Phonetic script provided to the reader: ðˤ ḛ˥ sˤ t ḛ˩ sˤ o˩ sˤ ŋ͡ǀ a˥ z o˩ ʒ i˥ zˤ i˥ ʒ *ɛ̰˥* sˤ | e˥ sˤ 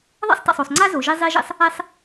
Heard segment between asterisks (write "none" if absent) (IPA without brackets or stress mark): ḛ˥